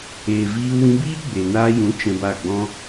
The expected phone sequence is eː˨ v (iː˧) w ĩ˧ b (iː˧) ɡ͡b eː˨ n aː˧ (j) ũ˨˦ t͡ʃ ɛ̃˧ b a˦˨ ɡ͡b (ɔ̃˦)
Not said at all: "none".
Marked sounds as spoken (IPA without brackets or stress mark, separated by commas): iː˧, iː˦, j, ɔ̃˦